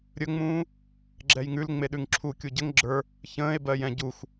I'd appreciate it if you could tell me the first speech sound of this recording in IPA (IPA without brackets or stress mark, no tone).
ɾʲ